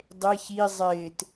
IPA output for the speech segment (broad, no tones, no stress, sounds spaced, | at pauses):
dˤ e ç i zˤ ɪː t